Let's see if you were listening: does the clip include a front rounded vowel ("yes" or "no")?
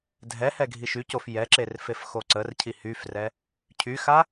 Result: yes